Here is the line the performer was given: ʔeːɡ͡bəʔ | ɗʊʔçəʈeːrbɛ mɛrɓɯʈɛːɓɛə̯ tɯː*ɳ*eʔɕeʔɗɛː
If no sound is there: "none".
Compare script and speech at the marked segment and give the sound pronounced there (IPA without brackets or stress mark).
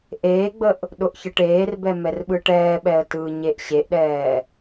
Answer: ɲ